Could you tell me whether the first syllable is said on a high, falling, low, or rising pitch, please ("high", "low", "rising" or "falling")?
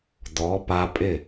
rising